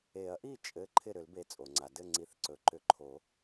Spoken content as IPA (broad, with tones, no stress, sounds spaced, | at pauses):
e˨˩˦ ɐ̯ ʔ i˥˩ t͡ʃʼ ɘ˨˥ ǃʰ ɪ˥˩ ɾ ʏ˨˩˦ l b e˨˩˦ t͡sʼ o˩ ŋ͡ǀ a˩ d ɘ˥˩ ŋ͡ǀ i˨˩˦ θ ǀ ɵ˩ ǃ ʏ˨˩˦ ǃʰ o˨˩˦